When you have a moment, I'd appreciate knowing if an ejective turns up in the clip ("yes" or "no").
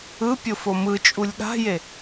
yes